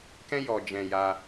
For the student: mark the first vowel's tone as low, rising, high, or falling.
high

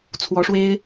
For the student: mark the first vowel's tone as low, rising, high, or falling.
rising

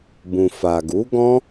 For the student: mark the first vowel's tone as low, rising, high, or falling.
low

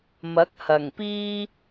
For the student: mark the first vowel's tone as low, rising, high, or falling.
rising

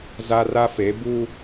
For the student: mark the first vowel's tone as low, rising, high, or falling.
high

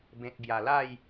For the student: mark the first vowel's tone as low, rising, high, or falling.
low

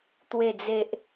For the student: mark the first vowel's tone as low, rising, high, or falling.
low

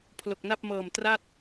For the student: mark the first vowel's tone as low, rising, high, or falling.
low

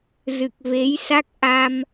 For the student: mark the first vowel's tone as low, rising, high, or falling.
low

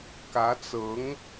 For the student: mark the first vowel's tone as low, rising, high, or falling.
rising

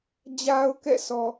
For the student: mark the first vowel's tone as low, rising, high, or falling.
low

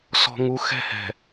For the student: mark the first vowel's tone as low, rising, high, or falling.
low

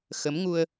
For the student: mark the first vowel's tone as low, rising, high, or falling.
rising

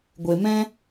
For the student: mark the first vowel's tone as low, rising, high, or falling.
low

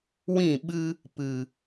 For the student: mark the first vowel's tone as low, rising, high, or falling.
falling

